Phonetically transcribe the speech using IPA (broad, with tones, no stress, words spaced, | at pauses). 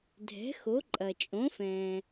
dʱɛ̤˩˥xo˩˥ǃʼɐ˩ t͡ʃʼõ˩˥fɛ̃ː˩